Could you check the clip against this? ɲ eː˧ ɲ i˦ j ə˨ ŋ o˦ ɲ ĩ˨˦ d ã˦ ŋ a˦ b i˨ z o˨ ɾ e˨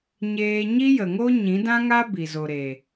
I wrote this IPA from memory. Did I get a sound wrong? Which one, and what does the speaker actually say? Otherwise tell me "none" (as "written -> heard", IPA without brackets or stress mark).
none